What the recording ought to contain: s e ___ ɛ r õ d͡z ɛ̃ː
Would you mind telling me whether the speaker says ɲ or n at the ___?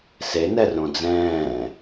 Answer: n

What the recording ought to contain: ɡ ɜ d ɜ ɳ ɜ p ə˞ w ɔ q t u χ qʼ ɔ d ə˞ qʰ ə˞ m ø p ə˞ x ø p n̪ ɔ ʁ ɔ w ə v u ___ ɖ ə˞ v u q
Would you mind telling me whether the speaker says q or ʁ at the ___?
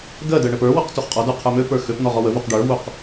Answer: q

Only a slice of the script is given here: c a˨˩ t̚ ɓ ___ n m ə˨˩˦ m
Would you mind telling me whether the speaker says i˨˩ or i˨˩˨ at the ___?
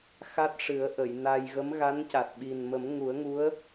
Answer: i˨˩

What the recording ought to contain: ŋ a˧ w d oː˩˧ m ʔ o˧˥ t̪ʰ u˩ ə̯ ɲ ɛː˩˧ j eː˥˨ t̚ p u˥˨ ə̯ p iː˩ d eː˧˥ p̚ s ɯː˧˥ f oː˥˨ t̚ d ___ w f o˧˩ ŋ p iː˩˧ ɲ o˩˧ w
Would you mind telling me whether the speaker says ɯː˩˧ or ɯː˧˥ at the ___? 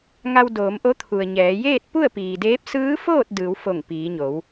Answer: ɯː˩˧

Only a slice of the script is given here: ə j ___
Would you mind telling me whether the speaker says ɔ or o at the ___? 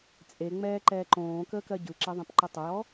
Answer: ɔ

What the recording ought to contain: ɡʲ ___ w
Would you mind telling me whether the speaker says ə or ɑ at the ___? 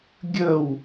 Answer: ə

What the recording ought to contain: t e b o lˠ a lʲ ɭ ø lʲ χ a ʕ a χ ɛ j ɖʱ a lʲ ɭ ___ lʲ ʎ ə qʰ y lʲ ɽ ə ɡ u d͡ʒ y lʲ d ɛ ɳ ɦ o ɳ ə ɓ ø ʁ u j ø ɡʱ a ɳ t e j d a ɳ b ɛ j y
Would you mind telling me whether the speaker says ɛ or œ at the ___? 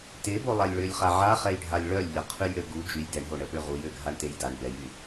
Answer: œ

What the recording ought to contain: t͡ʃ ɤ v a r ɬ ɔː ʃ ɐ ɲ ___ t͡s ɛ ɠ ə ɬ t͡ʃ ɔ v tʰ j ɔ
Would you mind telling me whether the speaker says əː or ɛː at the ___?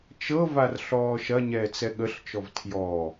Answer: ɛː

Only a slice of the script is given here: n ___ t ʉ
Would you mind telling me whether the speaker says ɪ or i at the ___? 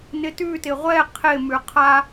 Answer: ɪ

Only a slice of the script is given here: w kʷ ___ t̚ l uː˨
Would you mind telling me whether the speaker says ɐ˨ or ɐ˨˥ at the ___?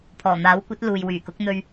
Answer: ɐ˨˥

